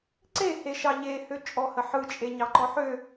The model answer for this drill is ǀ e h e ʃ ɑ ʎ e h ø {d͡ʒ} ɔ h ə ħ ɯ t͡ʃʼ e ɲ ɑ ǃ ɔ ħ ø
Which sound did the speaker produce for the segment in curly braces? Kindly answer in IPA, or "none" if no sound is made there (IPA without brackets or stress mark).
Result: t͡ʃʼ